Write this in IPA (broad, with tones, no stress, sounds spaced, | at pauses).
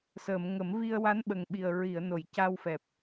s əː˨˩˨ m ŋ ə˨˩˦ m v i˧ ə̯ w a˧˥ n ɓ ə˨˩ ŋ ɓ i˨˩ ə̯ ɹ i˨˩˨ ə̯ n o˨˩˨ j c a˧ w f ɛ˨˩ p̚